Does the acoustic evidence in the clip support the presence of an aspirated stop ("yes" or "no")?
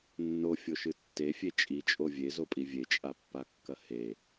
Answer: no